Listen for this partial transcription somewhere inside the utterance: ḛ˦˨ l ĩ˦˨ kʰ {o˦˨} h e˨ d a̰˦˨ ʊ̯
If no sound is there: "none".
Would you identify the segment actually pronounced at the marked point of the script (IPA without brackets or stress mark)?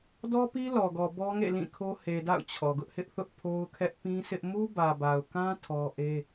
o˦